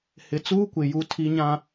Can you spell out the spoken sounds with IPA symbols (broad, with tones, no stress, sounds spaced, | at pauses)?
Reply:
h ɪ˨ t͡s uː˦ kʷ ɪ˨ j u˨ tʰ i˨ ɲ ã˨